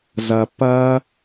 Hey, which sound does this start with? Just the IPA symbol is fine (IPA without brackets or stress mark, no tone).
z